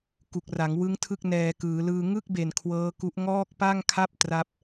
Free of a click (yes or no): yes